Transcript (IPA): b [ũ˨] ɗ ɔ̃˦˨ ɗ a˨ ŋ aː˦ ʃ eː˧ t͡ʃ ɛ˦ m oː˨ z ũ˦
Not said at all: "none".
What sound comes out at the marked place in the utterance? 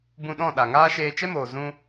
ũ˧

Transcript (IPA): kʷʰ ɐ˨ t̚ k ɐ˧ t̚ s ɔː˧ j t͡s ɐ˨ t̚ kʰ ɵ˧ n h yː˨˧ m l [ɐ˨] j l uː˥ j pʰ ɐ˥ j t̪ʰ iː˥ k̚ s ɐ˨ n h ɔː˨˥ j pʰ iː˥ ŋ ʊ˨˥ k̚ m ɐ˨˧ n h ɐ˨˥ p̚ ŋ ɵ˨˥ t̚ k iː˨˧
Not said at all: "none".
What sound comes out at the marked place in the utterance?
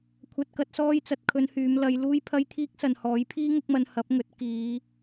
ɐ˨˧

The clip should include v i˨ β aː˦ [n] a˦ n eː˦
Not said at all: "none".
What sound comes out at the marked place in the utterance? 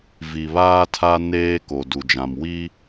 tʰ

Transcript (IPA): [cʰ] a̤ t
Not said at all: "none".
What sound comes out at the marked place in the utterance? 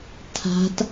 tʰ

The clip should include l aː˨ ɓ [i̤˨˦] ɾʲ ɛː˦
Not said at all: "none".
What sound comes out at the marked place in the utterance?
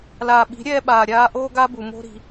i̤˨˦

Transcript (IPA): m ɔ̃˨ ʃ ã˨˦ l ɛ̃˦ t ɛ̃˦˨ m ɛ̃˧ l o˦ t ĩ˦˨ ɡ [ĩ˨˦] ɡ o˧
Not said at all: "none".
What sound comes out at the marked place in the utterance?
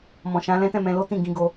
ĩ˨˦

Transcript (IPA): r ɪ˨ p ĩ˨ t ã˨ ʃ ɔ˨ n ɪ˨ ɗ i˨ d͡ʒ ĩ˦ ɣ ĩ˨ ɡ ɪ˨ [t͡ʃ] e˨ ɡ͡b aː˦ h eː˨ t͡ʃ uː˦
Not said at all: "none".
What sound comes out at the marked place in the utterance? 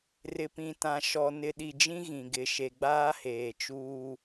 ʃ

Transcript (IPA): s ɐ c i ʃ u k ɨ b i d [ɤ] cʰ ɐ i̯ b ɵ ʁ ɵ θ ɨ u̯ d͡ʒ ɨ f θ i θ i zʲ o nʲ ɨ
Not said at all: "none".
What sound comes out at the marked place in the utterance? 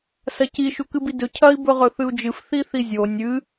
ɵ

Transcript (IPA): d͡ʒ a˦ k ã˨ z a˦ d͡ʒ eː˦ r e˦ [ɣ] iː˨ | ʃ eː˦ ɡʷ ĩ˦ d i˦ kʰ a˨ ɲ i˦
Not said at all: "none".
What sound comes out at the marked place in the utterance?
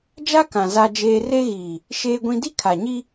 ɣ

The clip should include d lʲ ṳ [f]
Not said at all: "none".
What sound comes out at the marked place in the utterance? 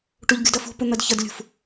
f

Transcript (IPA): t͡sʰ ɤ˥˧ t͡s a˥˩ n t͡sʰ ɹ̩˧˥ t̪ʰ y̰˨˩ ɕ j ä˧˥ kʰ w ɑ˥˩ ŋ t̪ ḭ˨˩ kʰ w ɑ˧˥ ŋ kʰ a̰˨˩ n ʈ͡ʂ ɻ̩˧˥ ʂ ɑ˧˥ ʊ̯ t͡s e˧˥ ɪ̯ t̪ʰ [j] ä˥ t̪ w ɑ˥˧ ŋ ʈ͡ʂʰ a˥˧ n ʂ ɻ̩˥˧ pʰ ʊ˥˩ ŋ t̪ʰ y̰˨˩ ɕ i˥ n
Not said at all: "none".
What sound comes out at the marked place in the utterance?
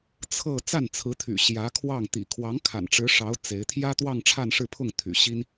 j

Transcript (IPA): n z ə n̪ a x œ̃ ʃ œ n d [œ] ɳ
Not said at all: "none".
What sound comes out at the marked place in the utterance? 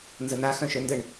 ə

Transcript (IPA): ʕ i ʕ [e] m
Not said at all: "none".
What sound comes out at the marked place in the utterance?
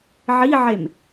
e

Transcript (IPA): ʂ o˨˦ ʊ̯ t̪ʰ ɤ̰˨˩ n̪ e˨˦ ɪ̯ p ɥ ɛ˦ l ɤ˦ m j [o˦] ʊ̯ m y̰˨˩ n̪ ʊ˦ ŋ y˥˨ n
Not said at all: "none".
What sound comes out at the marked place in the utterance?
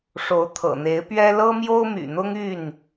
o˦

